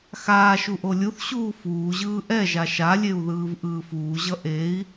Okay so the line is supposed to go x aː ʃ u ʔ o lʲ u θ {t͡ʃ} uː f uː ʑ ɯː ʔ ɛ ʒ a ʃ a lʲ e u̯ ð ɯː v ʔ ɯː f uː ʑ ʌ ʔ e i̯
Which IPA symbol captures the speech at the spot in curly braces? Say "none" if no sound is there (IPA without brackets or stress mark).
ɕ